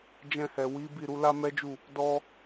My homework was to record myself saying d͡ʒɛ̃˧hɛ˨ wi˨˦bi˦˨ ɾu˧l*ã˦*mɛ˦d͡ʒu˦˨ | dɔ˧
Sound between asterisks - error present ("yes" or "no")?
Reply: yes